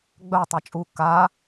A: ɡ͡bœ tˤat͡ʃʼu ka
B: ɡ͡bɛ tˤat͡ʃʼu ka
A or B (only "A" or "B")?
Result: A